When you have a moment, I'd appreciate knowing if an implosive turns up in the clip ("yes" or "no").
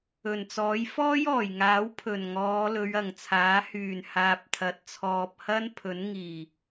no